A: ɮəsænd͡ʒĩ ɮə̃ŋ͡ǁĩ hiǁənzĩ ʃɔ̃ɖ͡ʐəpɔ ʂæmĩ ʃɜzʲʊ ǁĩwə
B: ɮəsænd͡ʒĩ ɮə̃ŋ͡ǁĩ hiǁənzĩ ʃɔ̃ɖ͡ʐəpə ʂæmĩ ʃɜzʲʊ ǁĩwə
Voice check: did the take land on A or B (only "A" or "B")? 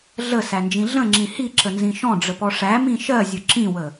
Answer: A